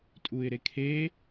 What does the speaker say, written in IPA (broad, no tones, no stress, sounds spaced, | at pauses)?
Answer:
tʼ u ɪ̯ ɾ e kʰ e